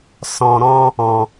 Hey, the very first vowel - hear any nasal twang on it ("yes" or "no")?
yes